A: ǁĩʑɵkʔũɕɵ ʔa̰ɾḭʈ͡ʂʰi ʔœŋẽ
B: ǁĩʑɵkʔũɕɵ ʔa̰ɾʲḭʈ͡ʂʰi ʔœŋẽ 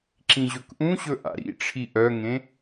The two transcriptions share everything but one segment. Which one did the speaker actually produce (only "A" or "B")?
A